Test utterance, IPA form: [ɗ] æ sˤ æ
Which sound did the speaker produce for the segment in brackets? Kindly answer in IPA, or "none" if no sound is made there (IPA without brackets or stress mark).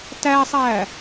t